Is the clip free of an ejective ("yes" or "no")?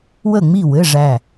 yes